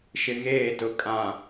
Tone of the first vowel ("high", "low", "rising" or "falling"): low